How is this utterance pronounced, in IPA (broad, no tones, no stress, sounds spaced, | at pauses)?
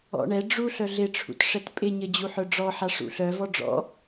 ɔ̰ ɳ ɛ ɖ͡ʐ u ɬ œ ɮ ɪ ʈ͡ʂʰ ṵ t ʂ ɛ t pʼ ɪ ɲ ɘ d͡ʑ u ħ œ ɖ͡ʐ ɔ ħ a ʂ ṵ ɬ œ v ɔ ɖ͡ʐ ɔ̰